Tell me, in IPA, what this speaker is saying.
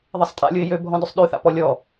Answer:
ðˤesˤtʼa̰lʲʊɪ̯ jøbʱɔ̃dʏsˤ ɗyθa̰pɔ lʲɔ

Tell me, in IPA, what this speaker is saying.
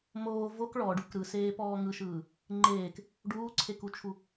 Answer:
moː vok ɭɔɖuk ɾɯseːpɔː ŋɯʃɯː | ŋ͡ǃeːk | ɖuːǀʰekut͡ʃʰu

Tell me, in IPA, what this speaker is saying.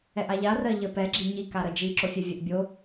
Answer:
ɛʔaʎa rɜʎə pɛ ɡ͡ǁiɲi kaɾəd͡ʒi ǁofʲɛvʲəʔ bʲo

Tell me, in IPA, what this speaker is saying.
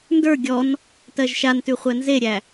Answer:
ndə˞ ɡʲɔn | tɜʒʃantʉ χʷænzeɾʲæ

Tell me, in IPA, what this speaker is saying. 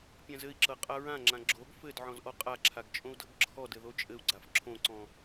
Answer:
pʲãzɘi̯ǁɤ qʼaɹãŋ͡ǁã ɡ͡ǁoɡ fɘd ʕɔ̃zʔɔqʼaǁʰaɡ t͡ʃʼõu̯dɤɡǁʰɔdɘ ðot͡ʃʼɘu̯ɡ͡ǀaf ǁʰõǀɔ̃

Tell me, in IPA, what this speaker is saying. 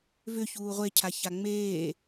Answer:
vʏ çuːʁʷecʰa çaŋ͡meː

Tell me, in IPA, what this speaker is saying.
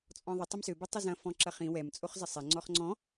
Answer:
t͡sʼɔ̃ðˤə tˤɐmsø bɛtˤəzɐ̃ fɔ̃ǁɐχĩ wɛm t͡sʼoχzəsˤɛ ŋ͡ǀɔχŋ͡ǀɔ̃

